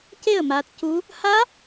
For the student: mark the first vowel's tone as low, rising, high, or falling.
falling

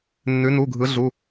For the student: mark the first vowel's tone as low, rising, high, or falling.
rising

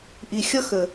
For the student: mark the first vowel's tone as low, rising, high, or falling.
low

